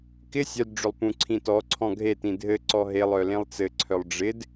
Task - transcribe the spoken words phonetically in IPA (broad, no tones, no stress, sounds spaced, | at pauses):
k ɪ sʲ œ d ɖ͡ʐ ʏ lˠ p ũ ǀʰ ĩ t ɔ ǀʰ ɔ̃ ɡʱ e t ĩ dʱ ɘ ǀ ɔ ɦ e lˠ œ l ẽ lˠ t͡s ɘ ǀʰ œ lˠ ɖ͡ʐ ɪ d